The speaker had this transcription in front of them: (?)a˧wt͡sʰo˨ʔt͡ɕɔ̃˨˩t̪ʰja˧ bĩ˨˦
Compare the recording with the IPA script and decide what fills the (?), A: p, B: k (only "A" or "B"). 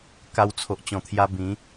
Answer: B